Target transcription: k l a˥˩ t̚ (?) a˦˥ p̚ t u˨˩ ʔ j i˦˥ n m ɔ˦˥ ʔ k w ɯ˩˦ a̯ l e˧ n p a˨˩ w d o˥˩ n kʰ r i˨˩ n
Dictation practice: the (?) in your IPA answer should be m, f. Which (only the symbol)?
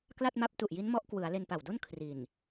m